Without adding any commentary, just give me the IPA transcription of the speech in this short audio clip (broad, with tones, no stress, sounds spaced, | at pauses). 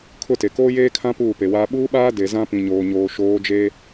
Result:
kʰ ʊ˦˨ t e˨ k oː˦ j eː˦ kʰ ã˦ p uː˦˨ p e˨ w aː˦ ɓ uː˦ ɓ aː˦ d e˨ z ã˦ p ĩ˨ ɲ oː˨ ɲ oː˨ ʃ oː˨˦ d͡ʒ e˦